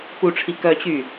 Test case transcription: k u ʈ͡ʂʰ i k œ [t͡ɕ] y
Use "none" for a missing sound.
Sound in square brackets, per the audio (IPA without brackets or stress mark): t͡ɕ